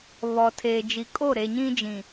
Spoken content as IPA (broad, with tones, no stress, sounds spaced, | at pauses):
β ɔ˨ tʰ eː˨ d͡ʒ i˨ kʼ o˦˨ ɾ e˨ ɲ ĩ˦ d͡ʒ ĩ˨